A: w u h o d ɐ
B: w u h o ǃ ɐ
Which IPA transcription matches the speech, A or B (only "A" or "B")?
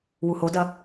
A